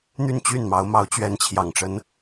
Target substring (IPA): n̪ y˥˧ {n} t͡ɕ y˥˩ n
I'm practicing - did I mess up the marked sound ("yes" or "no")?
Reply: no